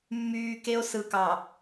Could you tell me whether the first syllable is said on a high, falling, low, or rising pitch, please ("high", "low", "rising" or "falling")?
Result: low